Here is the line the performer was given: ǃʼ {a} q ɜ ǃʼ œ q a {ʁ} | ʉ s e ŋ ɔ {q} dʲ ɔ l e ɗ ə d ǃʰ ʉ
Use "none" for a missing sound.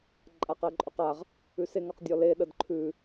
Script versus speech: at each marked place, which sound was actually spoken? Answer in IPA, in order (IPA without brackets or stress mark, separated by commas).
a, ʁ, q